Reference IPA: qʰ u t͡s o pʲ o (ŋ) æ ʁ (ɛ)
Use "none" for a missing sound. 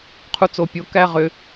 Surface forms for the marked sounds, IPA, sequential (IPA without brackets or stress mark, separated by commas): k, ʏ